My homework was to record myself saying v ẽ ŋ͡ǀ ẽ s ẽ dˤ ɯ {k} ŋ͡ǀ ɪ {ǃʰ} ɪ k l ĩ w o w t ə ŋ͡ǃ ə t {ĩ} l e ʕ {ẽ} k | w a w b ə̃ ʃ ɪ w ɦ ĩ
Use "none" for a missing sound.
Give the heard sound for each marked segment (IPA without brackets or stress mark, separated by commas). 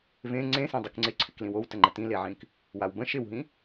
k, ǀʰ, ĩ, ĩ